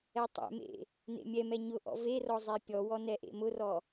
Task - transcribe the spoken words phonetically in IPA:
ɛ tˤ ɛ̰ m ḛ | n ḛ mʲ ɛ m ɛ ɲ ʊ ʔ ɔ̰ v e r ɔ zˤ e pʲ ɔ w ɔ n ɛ ʔ ḛ m ʊ r ɔ

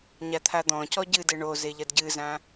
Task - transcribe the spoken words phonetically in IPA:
ɲ a t̪ʰ a d̪ ɔ̃ c ɔ ɟ ɨ d ɘ ɳ o z e ʎ ɐ d ɟ ɨ z ã

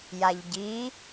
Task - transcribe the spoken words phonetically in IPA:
j a ʎ ɟ i

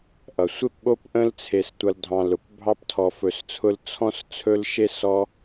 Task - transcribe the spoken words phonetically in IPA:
ʔ ʌ˩ sʷ e˥ p ɓ o˦ p ʔ ə̃˦ l t͡sʰ e˨ s tʷ ʌ˨ l dʱ ɑ̃˨ l ʊ˩ p bʱ ɑ˦ p tʰ ɔ˨ f ɵ˨ s t͡sʰ ʊ˦ l t͡sʰ ɔ̃˦ s t͡sʰ ɵ˥ l ʃ e˥ s ɔ˦

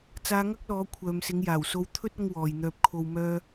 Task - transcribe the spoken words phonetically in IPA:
t͡s aː˧ ŋ ɐ˥ k̚ l ɔː˨˧ kʷʰ œː˨ m s ɪ˨˧ ŋ j aː˨˩ w s o˧ w t̪ʰ ɵ˥ t̚ ɐ˥ ŋ w ɔː˨ j n̪ œː˧ p̚ kʰ o˨ w m œː˧

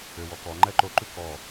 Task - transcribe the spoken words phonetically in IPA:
ø w ɔ k ɔ ŋ͡ǃ ɛ ǃ o ǃ ʉ k ɔ

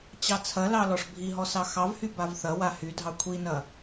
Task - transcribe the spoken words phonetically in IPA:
t͡ɕ ɑ t͡sʰ ɐ l ɑ l ɔ ʂ bʱ i ɦ ɔ s ɑ x ɑ v h y b a v θ ɐ w a h y dʱ ɑ kʷʰ i n ɐ

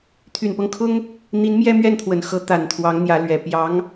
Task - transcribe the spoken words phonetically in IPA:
t̪ʰ y˨˩ n p ɤ˦ ŋ kʰ ʊ˥ ŋ | n̪ i˧˥ n m j ɛ˥ m ɥ ɛ˥˩ n t̪ʰ w ə˨˩ n x ɤ˧˥ t̪ a˨˩ n t̪ʰ w ɑ˧˥ ŋ n̪ j ä˧˥ l ɥ ɛ˨˩ p j ɑ˧˥ ŋ

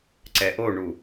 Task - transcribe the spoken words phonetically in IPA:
ǀ ɛ ʔ o ɳ u

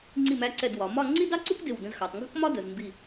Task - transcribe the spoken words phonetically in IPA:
ŋ͡ǀ i˧˩ m æ˧ ǀ ɛ˧˩ d w ɒ˩˧ m ɒ˥˧ ŋ͡ǀ i˥ d ɑ˥ ǀ u˥ k d ɪ˧˩ w d ə̃˧ z x ɑ˩˧ tˤ ŋ ɡ ɔ̤˥ k m ɒ˥ d ə˩˧ z m b i˧˩

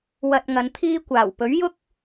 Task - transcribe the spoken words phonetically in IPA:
w ɐ˧ t̚ ŋ ɐ˨˧ n t̪ʰ iː˥ kʷ aː˨˩ w p ɵ˨˥ ɥ j ʊ˥ k̚

